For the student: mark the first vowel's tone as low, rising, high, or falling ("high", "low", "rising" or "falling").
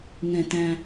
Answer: low